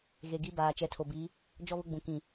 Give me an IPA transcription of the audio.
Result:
ɣe˨ɡi˦baː˨ t͡ʃɛ˨˦tʰo˨bi˨˦ | d͡ʒɔ˦βʊ˦ɡ͡bũ˨ kĩ˨

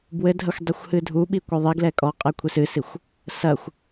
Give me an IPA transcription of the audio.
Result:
bwɘdʱɐxʷ dˤɛxʷhɨdʱuɓi kʷɛðˤiɡlɛ kʼɔqʼɛ kʷʰisɨsixʷ | sɐxʷ

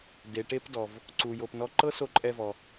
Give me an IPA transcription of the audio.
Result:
de˩ʈe˧pdɔ˩v | ǀu˩jo˩pnɔ˧ ǃɤ˥ so˧ǃʼɛ˧vɔ˩

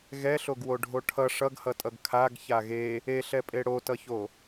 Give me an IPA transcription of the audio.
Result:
ɣɛɬoɡwoɖʱo ʈʰʌ ʂʌɡhʌtʼʌɡ kʰaɡ çaɣe | eɬɛpʼe ɽotʌço

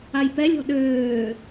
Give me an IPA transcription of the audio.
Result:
ajpɛlʲɔ̤ ɗøː

